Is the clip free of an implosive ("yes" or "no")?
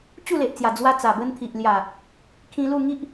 yes